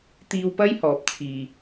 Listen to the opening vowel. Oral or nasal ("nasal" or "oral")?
oral